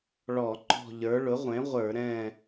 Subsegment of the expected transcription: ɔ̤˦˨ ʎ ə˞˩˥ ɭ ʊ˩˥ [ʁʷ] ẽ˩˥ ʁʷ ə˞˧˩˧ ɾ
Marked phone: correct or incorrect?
correct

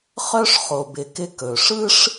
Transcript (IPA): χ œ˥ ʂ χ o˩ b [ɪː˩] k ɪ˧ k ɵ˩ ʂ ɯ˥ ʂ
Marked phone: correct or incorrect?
incorrect: ɪ˩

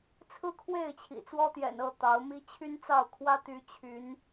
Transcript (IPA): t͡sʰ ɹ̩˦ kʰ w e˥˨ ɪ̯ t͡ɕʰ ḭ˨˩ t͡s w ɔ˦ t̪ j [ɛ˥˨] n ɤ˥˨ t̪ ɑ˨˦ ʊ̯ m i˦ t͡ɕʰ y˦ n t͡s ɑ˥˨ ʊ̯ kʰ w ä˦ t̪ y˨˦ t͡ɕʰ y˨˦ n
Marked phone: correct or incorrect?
incorrect: ɛ̰˨˩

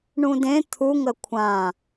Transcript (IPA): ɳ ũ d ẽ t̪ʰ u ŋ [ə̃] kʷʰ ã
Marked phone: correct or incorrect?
incorrect: ə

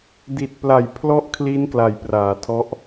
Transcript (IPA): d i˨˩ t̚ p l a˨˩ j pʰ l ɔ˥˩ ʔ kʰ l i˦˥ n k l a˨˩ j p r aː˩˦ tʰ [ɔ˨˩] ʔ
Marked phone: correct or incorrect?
incorrect: ɔ˦˥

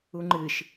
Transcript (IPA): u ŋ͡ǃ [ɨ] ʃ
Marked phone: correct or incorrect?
correct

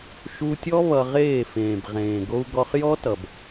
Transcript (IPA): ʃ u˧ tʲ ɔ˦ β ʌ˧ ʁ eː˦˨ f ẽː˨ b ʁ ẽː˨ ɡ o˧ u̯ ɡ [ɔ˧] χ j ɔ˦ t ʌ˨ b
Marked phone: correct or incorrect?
correct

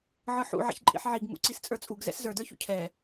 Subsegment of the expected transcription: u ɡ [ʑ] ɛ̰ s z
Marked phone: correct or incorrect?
incorrect: z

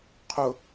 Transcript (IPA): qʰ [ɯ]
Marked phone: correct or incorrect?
incorrect: ʊ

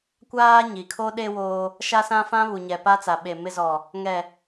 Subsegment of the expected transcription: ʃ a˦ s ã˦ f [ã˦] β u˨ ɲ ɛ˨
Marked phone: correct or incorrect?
correct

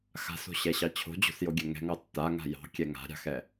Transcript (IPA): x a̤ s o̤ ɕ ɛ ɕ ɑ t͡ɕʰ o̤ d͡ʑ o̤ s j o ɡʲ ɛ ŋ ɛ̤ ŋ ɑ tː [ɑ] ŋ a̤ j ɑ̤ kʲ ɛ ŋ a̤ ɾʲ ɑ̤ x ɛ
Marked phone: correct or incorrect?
incorrect: a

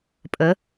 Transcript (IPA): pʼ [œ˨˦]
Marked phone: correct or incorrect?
incorrect: ə˨˦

